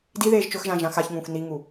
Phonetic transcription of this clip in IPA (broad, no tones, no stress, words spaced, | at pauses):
diðeːʒ t͡ʃɵxʒã ʒãxaçŋũːx niŋu